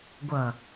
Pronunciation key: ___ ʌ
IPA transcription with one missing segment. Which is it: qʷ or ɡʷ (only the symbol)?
ɡʷ